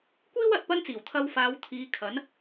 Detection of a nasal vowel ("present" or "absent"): absent